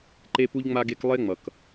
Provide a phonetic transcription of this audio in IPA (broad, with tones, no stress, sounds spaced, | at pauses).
ǃ e˦ p u˦ ʎ ŋ͡m a˦ ɡ e˦ k lˠ e˦ ŋ͡m ʌ˨ k